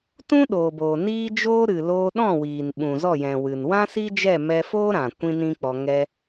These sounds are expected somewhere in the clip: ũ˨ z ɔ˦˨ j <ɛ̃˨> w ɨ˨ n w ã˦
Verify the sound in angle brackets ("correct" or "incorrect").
correct